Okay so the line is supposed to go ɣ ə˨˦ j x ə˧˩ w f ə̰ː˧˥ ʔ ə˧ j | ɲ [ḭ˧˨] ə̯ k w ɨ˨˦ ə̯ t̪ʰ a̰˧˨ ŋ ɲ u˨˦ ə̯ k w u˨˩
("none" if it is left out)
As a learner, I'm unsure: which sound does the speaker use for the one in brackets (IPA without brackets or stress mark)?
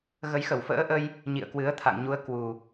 ḭ˧˨